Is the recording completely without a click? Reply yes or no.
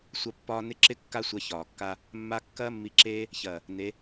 no